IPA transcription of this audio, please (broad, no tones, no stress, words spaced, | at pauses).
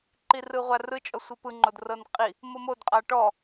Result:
ǃirɯʁʷarɯ t͡ʃʼɔsʷipɯŋ͡ǃod rɤnqʼi | mɤmod qʼaʈɔ